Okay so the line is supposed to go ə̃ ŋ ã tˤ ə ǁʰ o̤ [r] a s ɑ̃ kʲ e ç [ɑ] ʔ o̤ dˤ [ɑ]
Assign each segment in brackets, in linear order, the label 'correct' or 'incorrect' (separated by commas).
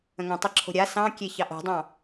incorrect, correct, incorrect